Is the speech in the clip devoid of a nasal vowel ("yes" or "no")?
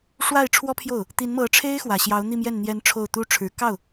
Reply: yes